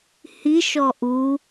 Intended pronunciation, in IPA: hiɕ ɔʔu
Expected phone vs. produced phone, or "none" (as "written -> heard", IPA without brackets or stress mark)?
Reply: ɕ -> ʃ